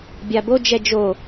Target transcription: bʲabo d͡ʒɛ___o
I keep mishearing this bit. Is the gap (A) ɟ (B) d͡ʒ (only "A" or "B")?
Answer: B